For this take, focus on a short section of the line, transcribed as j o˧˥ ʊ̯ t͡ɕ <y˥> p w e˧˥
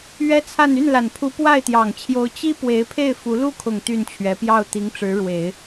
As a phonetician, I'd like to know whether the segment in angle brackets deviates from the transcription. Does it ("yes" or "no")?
yes